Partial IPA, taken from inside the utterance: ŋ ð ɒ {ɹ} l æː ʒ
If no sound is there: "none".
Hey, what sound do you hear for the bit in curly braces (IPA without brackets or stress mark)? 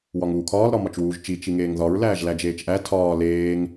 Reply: ɹ